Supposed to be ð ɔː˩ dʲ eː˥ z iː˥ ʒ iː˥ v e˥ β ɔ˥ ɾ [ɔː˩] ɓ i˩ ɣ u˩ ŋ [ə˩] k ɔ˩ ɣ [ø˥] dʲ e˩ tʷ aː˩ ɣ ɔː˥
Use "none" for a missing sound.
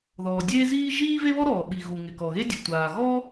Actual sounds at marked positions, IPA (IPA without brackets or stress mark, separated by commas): ɔː˩, ɪ˩, e˥